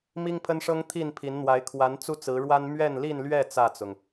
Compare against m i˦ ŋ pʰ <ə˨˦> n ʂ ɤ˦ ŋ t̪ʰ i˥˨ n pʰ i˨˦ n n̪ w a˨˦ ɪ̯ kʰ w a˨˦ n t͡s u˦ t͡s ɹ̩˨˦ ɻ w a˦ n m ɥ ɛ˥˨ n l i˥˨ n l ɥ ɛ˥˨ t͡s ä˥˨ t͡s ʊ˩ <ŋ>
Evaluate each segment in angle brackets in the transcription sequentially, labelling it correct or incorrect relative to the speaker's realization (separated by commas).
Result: incorrect, correct